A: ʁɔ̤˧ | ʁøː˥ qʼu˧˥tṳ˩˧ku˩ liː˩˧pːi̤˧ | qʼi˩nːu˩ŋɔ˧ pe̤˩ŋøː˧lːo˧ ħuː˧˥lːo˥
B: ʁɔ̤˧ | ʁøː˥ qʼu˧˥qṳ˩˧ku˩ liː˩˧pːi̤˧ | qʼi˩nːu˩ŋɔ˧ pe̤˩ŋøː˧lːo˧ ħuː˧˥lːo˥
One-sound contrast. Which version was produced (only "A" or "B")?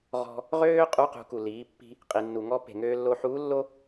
B